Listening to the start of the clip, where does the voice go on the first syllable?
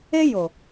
high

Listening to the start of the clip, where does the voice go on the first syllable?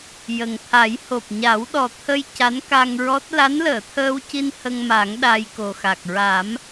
low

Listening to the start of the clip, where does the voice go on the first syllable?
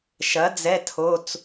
rising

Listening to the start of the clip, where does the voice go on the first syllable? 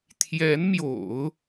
rising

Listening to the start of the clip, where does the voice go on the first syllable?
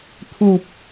low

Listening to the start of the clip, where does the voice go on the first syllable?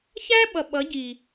high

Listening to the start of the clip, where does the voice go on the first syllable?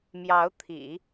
rising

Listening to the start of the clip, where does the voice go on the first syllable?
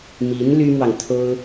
rising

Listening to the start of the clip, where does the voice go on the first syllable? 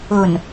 low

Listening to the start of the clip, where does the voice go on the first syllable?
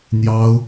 high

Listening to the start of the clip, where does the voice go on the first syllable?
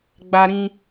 high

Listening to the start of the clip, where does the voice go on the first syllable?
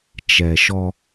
low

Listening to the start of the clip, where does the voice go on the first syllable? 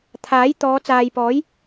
rising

